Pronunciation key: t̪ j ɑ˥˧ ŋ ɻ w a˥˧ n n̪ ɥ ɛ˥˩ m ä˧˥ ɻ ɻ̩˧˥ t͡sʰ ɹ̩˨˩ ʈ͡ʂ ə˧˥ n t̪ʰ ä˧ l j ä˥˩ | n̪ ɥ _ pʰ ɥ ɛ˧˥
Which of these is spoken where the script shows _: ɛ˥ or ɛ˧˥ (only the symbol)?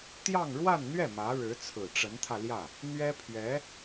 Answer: ɛ˥